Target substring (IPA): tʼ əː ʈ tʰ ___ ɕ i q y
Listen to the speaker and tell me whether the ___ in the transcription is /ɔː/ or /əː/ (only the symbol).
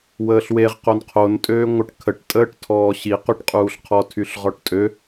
ɔː